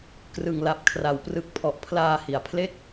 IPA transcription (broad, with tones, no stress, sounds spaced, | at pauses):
k r ɯ˨˩ ŋ l a˨˩ p̚ kʰ r a˩˦ w p r ɯ˨˩ k̚ pʰ ɔ˨˩ ʔ pʰ l aː˧ h i˨˩ a̯ pʰ l e˦˥ k̚